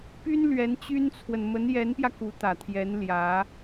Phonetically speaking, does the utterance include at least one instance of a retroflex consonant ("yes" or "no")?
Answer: no